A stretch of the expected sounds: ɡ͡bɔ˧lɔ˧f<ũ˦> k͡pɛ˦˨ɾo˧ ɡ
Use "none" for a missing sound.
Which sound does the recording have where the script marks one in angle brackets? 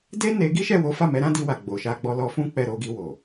ũ˦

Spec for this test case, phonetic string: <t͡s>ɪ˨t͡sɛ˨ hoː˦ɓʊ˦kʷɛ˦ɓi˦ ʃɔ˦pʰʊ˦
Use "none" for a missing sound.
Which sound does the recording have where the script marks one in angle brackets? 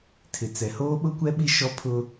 tʰ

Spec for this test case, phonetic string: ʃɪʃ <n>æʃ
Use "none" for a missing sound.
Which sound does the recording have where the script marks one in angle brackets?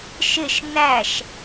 n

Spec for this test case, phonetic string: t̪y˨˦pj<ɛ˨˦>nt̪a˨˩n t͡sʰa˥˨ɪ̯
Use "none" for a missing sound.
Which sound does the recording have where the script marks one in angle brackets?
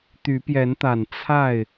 ɛ˨˦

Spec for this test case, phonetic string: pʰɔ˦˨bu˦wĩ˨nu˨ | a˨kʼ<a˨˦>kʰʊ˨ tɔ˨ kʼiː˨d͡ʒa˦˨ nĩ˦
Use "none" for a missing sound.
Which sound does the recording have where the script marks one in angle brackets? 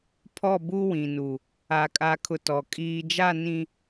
a˨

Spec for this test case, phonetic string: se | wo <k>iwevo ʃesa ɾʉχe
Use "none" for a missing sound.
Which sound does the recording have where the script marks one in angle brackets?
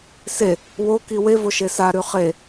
k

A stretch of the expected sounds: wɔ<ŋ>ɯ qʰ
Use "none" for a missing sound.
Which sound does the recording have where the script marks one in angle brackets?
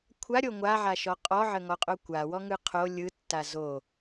ŋ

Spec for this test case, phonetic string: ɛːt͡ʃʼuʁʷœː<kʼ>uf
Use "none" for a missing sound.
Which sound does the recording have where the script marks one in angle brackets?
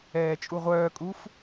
kʼ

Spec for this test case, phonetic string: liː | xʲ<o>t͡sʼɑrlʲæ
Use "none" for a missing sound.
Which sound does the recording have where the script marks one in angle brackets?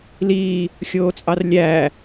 oː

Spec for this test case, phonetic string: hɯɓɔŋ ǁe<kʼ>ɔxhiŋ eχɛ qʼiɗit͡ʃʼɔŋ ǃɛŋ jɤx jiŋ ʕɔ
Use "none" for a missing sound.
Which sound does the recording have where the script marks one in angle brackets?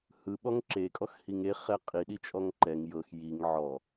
kʼ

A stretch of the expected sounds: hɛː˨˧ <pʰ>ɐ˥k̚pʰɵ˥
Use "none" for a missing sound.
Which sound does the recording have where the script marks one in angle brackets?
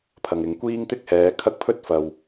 kʰ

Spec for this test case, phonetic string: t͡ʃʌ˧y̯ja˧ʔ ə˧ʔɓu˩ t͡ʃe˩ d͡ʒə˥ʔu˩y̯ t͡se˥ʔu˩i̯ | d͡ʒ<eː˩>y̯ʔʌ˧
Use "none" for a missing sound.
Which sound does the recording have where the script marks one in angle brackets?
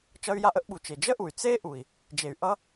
e˩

